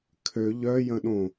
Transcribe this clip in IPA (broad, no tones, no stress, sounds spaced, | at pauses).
kʰ ø ʎ œ j ə̃ ɗ õ